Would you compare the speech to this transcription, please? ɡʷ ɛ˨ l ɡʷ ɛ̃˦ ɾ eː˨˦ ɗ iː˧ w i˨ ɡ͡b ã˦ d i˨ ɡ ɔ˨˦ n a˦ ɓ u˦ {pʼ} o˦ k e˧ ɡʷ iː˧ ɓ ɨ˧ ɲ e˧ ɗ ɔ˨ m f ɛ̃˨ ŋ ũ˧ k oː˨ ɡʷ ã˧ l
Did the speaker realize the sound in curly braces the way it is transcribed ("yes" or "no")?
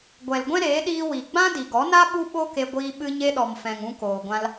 no